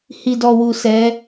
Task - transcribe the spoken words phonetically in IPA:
h i˨ d ɔ˨ w u˨ s ɛ˨˦

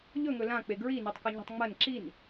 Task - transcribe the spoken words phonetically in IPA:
ʎ ɵ ŋ ɵ l ã k͡p e ɡ ɹ i n i tˤ k ɵ ɲ i̤ tˤ ŋ͡m ɐ n ǁ i n

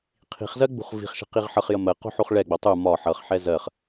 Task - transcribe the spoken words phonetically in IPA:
qʰ i̤ χ z ɜ ɡ͡b ṳ χ v i̤ χ ʃ ə̤ q i ʁ ħ ʌ χ j ə m ɜ q o̤ ħ o χ ɭ ɛ ɡ͡b o tˤ u m ɒ ħ ʌ χ ħ ɛ z ɜ χ

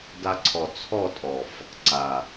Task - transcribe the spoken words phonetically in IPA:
d a˧ ǀʰ ɔ˨ t͡sʰ ɔ˦˨ tʼ ɔ˨ f | ǀ a˨

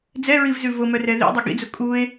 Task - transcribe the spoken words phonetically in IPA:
d͡z ɛ ɹ i v z ʉ v ʊ m œ r ɛ ð ḭ dˤ ʊ ɡ ḭ d͡z ʊ kʼ u e̯

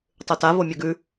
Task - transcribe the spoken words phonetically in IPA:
tˤ ʉ t a v o mʲ ɵ ɡ ʉ

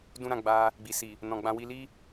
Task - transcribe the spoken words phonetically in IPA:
d ũ˦ ɾ ã˧ ɡ͡b a˧ | ɡ͡b i˨ s i˨ | n ɔ̃˨ ɡ͡b ã˧ w i˧ l i˦

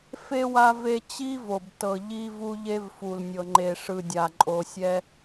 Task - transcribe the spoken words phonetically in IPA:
f e˦ w a˦ v e˦ t͡ɕ i˦ v o˨ b t ɤ˨ ʎ i˦ v u˦ ʎ e˦ v f u˨ l nʲ ɤ˨ ŋ͡ǃ e˨ ʂ ɯ˨ dʲ a˨ ǃʼ o˨ sʲ ɛ˦

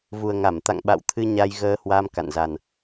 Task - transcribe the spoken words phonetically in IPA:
v u˨˩ ə̯ ŋ a˧˩ m t̪ a̰˧˨ ŋ ɓ a̰˧˨ w t̪ʰ ɨ˧ ɲ a˧ j ɣ əː˧ h w a˧ m k a̰˧˨ n z a˨˩ n

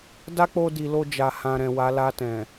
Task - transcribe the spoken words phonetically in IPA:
d a˦ k͡p o˧ d i˨ l o˧ d͡ʒ a˧ h ã˧ ɾ ɛ̃˨ w a˨˦ l a˧ t ɛ̃˨

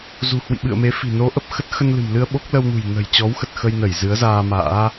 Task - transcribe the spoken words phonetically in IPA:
z ṳ˨˩ h w ḭ˧˨ ɓ ɨ̰˧˨ ə̯ m e˨˦ f i̤˨˩ n o˨˦ ʔ ə˨˩ p̚ x ə˦˥ t̚ x ə˧ n l ɨ̤˨˩ m l ɨ˧ ə̯ ɓ o˦˥ k̚ l ə˧ w n ṳ˨˩ j n ə̤˨˩ j t͡ɕ ɔ˨˦ w x ə˨˩ t̚ x ə˧ j n ə˧˩ j z ɨ˨˦ ə̯ z aː˧ m a̰ː˧˥

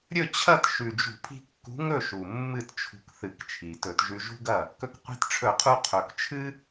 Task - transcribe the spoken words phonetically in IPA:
ɾʲ ɵ˥˨ t͡ɕʰ ɐ˥˨ t ʃ ʉ˨˩ d͡ʒ ṳ˧˩˧ pʰ i̤˧ kː ṳ˨˥ ŋ ɵ˥˨ ʃ u˨˩ mː ɨ˥˨ t t͡ʃʰ ṳ˧ k θ ɨ˧˩˧ k t͡ʃʰ i˨˩ t ɵ˧˩˧ t ʒ ʉ˧ ʒ ṳ˥ ɡ ɐ˥˨ | k ɵ˧ k qʷ i̤˧ t ʈ͡ʂʰ ɵ˧˩˧ qʰ u˧ qʰ ɵ˨˩ k t͡ʃʰ ɨ˥

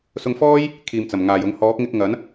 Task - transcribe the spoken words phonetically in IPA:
s ʊ˧ ŋ f ɔː˥ j | kʰ iː˨ m t͡s ɐ˨˩ m ŋ aː˨˩ j ʊ˨ ŋ h ɔː˨˥ k̚ ŋ ɪ˧ k̚ ŋ ɐ˨˥ n

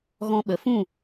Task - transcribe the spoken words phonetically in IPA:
ɣ ɔ̃˧ ɓ ə˨ f ũ˦˨

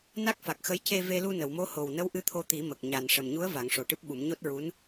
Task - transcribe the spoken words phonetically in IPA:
n a˦˥ k̚ f a˨˩ k̚ x ə˧˥ j c e˧ v e˧ l u˧ n ə˨˩˨ w m o˧˥ h o˨˩ w n ə˧˥ w ʔ ɨ˧˥ t̪ʰ o˧ t̪ i˨˩˦ m ə˨˩ k̚ ɲ a˨˩ n ʂ ə˨˩ m ɲ u˧˥ ə̯ v a˨˩˦ ŋ ʂ o˨˩ ʈ ɨ˦˥ p̚ ɓ u˨˩˦ m ɲ o˦˥ t̚ ɹ u˧˥ n

